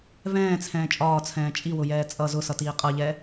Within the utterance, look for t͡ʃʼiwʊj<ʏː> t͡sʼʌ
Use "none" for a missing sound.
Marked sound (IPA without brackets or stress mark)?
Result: ɛː